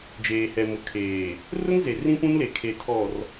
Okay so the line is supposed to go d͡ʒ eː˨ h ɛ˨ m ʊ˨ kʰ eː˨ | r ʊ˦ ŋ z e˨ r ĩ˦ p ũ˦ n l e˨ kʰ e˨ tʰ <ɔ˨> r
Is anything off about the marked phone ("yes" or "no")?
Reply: no